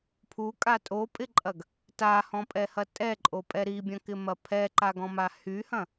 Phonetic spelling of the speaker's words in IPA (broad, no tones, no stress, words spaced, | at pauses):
pʰukʼa tʼopʼɪǃʼɐɡ | tahɔ̃pʼɛhɐ tʼɛǃʼopʼɛ ɾibʲɐ̃kɪmɐ pʰɛǃaɡɔ̃ma hyhɐ̃